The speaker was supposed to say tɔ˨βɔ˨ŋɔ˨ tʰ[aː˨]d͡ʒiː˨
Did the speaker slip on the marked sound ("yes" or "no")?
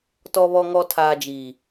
no